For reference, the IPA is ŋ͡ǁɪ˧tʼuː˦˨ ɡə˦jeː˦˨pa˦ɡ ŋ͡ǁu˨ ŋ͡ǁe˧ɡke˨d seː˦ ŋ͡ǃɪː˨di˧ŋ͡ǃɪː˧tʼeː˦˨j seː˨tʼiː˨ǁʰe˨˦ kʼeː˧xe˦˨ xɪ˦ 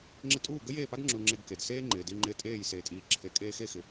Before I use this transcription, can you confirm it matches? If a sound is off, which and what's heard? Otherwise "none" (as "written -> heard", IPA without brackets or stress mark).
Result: none